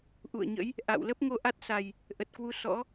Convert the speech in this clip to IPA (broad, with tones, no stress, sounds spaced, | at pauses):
ʔ ṵ˧˨ ə̯ ɲ ə̰˧˥ j | ʔ a̰˧˨ w l ə˦˥ p̚ ŋ o˧ ʔ a˦˥ t̚ s a˨˩ j | ʔ ə˨˩ t̚ k w u˧ s ɔ̰˧˥